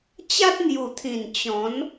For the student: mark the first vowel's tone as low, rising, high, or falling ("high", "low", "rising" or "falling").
high